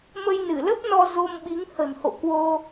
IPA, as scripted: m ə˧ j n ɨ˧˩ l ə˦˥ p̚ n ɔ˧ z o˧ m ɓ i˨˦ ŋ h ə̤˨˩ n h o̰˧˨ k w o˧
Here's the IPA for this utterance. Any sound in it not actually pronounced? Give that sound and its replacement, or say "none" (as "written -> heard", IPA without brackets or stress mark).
none